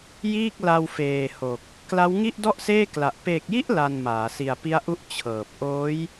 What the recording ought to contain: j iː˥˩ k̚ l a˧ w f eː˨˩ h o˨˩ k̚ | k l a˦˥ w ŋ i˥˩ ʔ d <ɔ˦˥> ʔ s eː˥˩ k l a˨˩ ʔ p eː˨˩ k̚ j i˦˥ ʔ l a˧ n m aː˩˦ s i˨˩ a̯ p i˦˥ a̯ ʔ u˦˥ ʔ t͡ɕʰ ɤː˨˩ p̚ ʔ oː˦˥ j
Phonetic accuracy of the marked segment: incorrect: ɔ˥˩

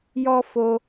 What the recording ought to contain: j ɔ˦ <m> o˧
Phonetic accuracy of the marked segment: incorrect: f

